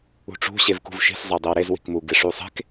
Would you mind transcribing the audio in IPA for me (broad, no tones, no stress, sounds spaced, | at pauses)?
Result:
ṳ ʈ͡ʂ ṳ ɕ e v k ṳ v ʃ i̤ s zˤ e dˤ ɪ w ɾ e z w i̤ k m u ɡ ɪ ʂ u sˤ e̤ k